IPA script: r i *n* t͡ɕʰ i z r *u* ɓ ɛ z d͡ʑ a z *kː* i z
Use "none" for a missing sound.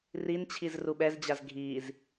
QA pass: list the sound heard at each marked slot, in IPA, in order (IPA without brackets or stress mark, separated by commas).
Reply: n, u, ɡʱ